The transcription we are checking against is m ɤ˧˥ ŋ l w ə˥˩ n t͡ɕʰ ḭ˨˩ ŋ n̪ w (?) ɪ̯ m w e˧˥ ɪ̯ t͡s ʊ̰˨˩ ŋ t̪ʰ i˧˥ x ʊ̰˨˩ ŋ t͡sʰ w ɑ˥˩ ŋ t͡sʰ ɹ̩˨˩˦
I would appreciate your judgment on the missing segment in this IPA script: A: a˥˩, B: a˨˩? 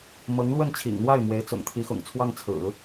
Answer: A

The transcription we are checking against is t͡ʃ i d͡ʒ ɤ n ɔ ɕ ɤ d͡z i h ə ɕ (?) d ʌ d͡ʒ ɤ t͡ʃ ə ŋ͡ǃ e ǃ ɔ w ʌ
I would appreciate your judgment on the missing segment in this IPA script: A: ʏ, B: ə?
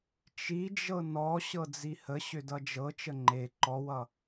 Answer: A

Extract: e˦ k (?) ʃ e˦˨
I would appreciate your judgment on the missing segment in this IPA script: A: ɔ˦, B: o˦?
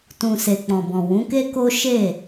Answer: B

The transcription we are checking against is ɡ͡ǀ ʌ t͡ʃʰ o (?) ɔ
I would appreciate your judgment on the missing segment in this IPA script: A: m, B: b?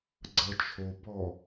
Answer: B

